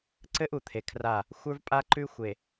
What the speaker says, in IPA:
ǀɘ˦ʔ u˨t̪ʰe˨kʰra˦˨ | xʷə˞˦vpʼa˦ǃʉ˦xʷe˨

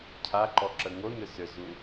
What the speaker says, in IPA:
cʰaǃɔǁə ŋonʏ sʏzu

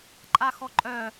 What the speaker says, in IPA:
ǃʼaxɔǃʼœ

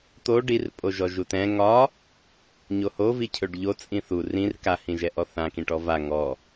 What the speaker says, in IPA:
t̪o ɖirpʼoʒɔ ʒutɛ̃ ŋɒ | ɲohovi cʰøɖʎo t͡sʼĩθu rĩr kahĩʒɛ ʔɔθãkĩʈɔ va ŋɔ

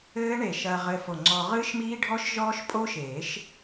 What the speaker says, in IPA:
ɘː˦˥ ɳe˧˩ʃɐː˧ ʁɘː˧fo˧˩ŋ͡ǀɔː˧ ʁɨː˦˥ʃmiː˦˥ɖʱɔ˦˥ʃ ʒɔː˦˥ʃpʼo˦˥ʃeː˨˩˦ʃ

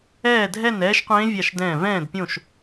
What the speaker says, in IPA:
ɛː˦˨dʱɛ˦˨n ɛː˦˥ʃqʷẽː˦˥vʲa˦˨ʃdɛ̃ː˦˨ vɛ̃ː˦˨dpʲõ˦˨ʃ

